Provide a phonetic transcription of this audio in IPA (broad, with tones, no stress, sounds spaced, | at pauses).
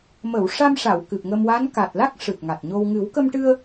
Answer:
m ə˨˩˨ w ʂ a˧ m ʂ a˨˩˨ w k ɨ˨˩ p̚ ŋ ə˧ m w a˧˥ n k a˨˩ t̚ l a˦˥ k̚ ʂ ɨ˨˩ t̚ ŋ a˨˩ t̚ ɲ o˧ w ŋ ɨ˨˩˦ w k ə˧ m ʈ ɨ˧ ə̯